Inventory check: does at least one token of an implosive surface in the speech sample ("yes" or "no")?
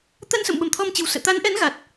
yes